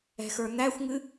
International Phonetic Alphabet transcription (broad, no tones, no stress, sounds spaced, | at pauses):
ɛ̤ x ə˞ n̪ æ xʷ ŋ ɨ